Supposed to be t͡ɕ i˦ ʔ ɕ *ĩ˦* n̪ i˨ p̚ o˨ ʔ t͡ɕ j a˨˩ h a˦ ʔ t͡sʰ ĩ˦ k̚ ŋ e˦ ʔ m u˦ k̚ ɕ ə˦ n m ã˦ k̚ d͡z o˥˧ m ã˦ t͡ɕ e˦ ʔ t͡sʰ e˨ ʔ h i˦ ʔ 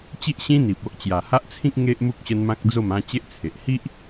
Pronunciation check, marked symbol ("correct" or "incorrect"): correct